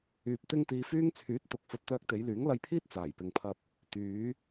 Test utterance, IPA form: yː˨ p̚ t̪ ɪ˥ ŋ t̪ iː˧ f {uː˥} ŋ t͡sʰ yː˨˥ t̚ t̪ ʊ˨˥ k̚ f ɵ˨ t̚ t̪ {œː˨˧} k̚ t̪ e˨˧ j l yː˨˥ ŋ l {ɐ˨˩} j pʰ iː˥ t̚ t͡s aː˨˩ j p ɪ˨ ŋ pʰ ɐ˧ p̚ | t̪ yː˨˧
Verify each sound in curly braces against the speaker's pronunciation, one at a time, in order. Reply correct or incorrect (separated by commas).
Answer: incorrect, incorrect, incorrect